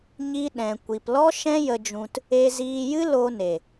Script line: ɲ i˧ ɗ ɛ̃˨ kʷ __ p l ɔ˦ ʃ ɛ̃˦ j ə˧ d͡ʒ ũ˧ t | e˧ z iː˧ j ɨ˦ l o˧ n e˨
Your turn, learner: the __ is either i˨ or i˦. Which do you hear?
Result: i˨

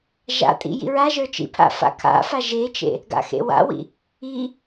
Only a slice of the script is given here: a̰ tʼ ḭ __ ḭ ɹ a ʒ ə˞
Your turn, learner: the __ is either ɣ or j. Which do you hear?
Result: j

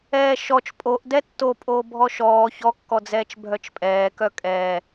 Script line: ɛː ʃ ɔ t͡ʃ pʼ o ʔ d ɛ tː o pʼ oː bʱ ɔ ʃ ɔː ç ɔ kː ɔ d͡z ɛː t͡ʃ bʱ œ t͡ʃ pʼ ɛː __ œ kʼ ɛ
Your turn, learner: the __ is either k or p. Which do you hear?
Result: k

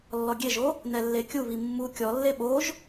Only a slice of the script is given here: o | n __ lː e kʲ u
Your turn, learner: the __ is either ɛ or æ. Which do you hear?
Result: ɛ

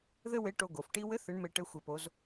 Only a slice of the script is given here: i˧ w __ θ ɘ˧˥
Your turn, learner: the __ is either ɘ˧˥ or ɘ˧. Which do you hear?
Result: ɘ˧˥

